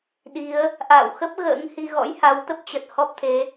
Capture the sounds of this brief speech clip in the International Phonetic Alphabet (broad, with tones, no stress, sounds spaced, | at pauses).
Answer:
ɗ i˨˦ ə̯ | ʔ a̰ː˧˨ w x ə˦˥ p̚ ɣ ə̰ː˧˥ ŋ h i˧ ɣ ɔ̰˧˥ j h a˨˦ w t̪ ə˦˥ p̚ t͡ɕ ə˨˩ t̚ h ɔ˦˥ p̚ t̪ʰ e˨˦